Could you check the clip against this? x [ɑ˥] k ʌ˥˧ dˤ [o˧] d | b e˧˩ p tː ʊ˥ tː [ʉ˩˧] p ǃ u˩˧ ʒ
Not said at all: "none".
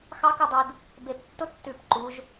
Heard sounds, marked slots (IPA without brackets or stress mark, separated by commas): ɑ˥, u˧, ʉ˧˩